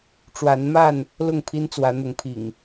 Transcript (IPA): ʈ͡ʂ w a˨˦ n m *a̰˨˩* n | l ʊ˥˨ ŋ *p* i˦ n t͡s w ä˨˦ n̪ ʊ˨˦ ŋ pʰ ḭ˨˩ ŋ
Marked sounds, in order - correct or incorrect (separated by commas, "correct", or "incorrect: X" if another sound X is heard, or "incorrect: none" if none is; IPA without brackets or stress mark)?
incorrect: a˥˨, incorrect: pʰ